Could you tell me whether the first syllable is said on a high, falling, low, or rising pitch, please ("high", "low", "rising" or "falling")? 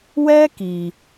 high